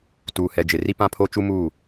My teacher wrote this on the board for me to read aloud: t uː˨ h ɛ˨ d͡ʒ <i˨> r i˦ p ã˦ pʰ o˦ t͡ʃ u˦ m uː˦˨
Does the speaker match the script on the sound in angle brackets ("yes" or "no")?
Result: no